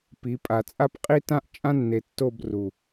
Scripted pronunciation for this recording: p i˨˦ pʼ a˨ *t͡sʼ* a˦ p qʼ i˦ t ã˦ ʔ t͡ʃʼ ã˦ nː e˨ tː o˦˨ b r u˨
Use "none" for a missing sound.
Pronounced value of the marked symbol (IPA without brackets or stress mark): t͡sʼ